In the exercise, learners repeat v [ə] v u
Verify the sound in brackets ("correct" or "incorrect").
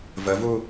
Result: correct